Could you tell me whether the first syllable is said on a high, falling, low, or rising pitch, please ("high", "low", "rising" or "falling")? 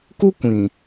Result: high